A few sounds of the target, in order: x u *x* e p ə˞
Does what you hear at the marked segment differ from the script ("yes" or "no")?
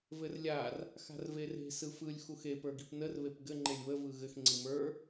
no